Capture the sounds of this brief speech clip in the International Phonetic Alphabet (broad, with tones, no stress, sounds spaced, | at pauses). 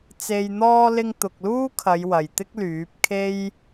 t͡s e˨ j n̪ ɔː˧ l ɪ˧ ŋ t̪ ʊ˨ k̚ l uː˥ kʰ ɐ˨˧ j w ɐ˨ j t̪ ɪ˥ k̚ l yː˨˥ p̚ kʰ e˥ j